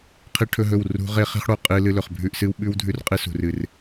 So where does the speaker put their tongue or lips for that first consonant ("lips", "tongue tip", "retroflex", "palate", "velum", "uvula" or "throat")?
uvula